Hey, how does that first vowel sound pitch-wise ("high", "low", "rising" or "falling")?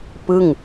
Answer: falling